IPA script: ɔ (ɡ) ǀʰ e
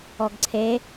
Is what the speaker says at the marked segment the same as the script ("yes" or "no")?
yes